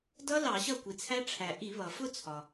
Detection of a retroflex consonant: present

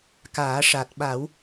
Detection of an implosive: present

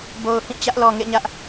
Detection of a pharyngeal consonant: absent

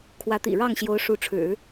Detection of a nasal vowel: absent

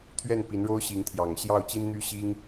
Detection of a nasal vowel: absent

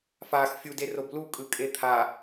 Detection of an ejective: present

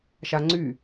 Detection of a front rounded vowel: present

